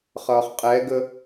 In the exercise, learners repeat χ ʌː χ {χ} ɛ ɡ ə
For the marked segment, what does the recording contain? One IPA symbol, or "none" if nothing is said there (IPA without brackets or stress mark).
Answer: qʼ